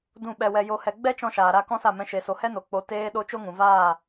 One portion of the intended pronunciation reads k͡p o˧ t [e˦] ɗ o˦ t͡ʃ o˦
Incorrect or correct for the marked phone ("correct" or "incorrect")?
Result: incorrect